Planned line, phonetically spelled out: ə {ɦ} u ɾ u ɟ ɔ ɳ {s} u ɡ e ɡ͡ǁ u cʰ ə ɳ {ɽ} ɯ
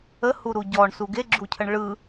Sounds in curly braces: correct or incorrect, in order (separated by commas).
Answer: incorrect, correct, incorrect